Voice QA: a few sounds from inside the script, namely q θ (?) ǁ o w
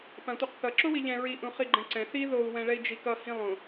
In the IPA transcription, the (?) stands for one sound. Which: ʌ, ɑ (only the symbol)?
ʌ